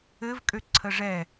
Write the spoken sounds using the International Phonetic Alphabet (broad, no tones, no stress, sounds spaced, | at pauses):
ɘ v kʼ ø ǀʰ ə ʐ ɛ